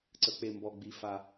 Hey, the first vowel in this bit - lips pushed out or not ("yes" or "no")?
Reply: no